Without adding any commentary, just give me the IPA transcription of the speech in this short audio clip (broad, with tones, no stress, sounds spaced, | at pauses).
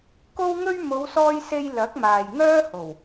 k o˥ w ŋ ɵ˥ ɥ m o˨˧ w s ɔː˧ j s e˧ j l ɐ˨˥ k̚ m aː˨ j ŋ œː˥ h o˨˩ w